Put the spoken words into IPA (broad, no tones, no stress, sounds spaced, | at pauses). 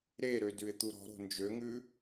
ɾ e ɾ ø d ʉ ɪ̯ t̪ u ɾ ɔ̤ ɾ o̤ n d͡ʒ ø ŋ ʉ